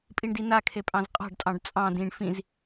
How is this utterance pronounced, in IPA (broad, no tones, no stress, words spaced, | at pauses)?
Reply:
pʼiɳdinakʰe pʼɑ̃zqʼɑ̤ɖtʼɑ̃ɖ t͡sʼɑ̃ dĩɳ fĩz